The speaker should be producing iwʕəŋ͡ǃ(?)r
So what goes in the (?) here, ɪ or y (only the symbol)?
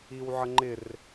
ɪ